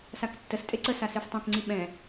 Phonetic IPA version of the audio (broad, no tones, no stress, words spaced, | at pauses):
saktːəstʼe ǀəsa seftˤœ̃kŋ͡ǀi ɓɛ̃